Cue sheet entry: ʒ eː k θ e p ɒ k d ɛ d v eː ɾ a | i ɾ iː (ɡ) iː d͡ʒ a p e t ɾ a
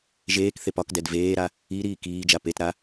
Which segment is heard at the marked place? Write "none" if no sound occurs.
k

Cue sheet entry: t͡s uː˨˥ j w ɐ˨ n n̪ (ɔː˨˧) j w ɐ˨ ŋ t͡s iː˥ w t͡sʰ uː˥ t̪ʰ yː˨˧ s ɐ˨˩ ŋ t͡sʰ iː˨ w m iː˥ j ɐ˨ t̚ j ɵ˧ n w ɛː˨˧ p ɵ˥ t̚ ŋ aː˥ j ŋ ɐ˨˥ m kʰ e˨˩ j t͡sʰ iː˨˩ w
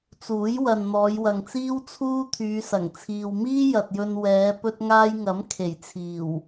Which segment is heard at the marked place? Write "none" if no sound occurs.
ɔː˨˧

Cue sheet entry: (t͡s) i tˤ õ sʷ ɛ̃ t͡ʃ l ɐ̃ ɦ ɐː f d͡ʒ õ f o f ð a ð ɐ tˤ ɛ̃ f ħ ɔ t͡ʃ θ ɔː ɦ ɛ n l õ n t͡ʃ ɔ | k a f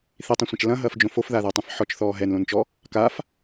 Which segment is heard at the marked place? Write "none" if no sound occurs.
θ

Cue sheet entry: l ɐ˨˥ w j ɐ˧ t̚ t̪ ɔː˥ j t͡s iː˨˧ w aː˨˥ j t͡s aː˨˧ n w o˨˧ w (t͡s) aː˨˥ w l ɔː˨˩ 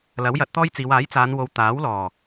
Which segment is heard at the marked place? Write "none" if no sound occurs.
t̪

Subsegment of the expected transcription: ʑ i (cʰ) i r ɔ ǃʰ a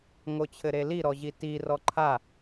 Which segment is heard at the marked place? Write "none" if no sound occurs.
t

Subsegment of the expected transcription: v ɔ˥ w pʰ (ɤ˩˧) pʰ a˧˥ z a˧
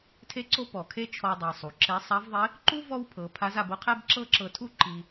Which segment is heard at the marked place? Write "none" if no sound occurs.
ɤ˩˧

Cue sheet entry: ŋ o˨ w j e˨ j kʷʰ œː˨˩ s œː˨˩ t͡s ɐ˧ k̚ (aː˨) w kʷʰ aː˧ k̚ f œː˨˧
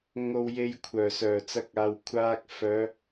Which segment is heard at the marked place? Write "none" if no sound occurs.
aː˨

